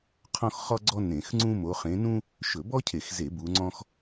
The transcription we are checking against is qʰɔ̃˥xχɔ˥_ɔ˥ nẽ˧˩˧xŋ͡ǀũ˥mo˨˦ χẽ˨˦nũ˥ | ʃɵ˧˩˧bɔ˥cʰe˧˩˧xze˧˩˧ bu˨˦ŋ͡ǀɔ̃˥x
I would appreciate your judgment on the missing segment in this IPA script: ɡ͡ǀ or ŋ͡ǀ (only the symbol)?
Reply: ɡ͡ǀ